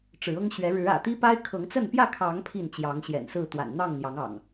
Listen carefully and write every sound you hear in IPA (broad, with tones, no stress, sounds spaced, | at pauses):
ʈ͡ʂ ɻ̩˨˦ ɤ˦ ŋ ɕ ɥ ɛ˨˦ ɻ ɻ̩˨˦ ä̰˨˩ t̪ i˦ p a˦ ɪ̯ kʰ ɤ˨˦ ŋ t͡s ə˥˨ n p j ä˥˨ kʰ ɑ˨˦ ŋ pʰ i˥˨ n t͡ɕ j ɑ˨˦ ŋ ɕ j ɛ̰˨˩ n s ɹ̩˥˨ t̪ w a̰˨˩ n n̪ ɑ˥˨ ŋ n̪ j ɑ˨˦ ŋ ɑ̰˨˩ ŋ